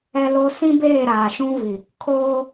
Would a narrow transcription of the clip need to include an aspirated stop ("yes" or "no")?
yes